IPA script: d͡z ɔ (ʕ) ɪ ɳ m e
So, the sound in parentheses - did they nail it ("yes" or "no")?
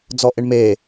no